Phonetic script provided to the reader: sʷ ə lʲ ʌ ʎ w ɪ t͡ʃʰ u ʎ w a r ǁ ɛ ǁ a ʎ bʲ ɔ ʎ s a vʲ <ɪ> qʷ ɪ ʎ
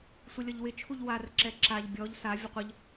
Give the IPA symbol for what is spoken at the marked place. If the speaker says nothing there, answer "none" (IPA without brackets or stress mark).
ə